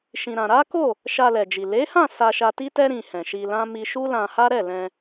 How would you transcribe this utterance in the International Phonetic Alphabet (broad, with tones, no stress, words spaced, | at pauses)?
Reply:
ʃĩ˧ɾã˧ ɾa˦ko˦˨ | ʃa˧lɛ˨d͡ʒi˨ le˨˦hã˦˨ sa˧ʃa˧ti˦tɛ˦ ɾĩ˧hɛ̃˨ʃi˧lã˦ mi˦ ʃu˦lã˧ha˦ɾɛ˦˨ lɛ̃˧